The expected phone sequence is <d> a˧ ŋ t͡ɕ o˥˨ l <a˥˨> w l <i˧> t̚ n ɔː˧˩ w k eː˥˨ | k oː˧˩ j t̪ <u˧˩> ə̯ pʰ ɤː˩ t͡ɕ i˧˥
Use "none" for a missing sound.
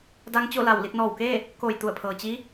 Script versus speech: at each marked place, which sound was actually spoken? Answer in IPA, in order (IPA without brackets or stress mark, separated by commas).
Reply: d, a˧˩, i˥˨, u˧˩